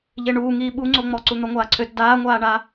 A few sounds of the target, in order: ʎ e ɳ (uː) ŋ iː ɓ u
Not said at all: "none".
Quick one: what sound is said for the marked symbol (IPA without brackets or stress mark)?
uː